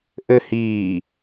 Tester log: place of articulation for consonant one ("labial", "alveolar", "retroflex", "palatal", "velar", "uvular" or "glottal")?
glottal